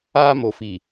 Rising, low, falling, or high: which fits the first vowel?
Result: high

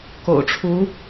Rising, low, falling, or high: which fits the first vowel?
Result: low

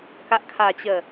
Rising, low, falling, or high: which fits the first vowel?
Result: low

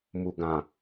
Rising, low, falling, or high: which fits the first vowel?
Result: low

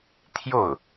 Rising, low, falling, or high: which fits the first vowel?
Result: falling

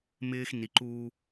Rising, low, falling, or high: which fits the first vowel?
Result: high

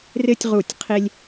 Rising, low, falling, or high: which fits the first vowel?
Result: high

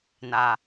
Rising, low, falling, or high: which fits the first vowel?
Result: low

